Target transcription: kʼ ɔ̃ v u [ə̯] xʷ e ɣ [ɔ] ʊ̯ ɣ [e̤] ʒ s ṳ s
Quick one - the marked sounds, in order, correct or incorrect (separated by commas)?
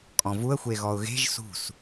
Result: correct, correct, correct